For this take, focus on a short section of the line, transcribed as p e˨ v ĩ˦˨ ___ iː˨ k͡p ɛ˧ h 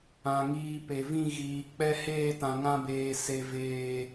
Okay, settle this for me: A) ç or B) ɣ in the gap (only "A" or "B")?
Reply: B